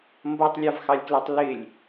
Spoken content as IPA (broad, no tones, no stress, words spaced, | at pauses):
mbʌtˤlʲɑvxɑlʲklɛtˤ lɪlʲ